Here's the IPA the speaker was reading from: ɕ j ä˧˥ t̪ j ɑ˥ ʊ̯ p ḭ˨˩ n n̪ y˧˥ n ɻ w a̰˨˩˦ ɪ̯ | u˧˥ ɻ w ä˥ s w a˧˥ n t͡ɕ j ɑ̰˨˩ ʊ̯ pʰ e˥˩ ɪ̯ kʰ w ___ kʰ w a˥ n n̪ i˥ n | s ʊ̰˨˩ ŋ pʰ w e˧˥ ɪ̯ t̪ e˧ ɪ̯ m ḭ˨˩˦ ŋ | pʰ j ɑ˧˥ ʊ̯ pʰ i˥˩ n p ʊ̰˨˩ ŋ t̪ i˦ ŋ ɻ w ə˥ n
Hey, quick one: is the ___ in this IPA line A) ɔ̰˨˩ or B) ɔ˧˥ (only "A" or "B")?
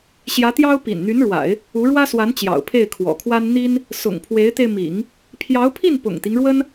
A